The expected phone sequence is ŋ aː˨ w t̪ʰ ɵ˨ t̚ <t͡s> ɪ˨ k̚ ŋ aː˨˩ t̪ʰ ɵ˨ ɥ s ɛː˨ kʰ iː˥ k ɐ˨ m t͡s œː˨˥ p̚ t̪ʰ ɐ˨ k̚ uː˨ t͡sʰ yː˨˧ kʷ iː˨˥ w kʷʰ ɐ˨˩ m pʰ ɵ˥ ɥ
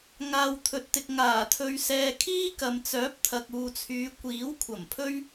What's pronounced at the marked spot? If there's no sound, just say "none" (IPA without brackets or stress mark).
t̪